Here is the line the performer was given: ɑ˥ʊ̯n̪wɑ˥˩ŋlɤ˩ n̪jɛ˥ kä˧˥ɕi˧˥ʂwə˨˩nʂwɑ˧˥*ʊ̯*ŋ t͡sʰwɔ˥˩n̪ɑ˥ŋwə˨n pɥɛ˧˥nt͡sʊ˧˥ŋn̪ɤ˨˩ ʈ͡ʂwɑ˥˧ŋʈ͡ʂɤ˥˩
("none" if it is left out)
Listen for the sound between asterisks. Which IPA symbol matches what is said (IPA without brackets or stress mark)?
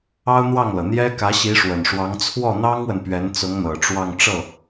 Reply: none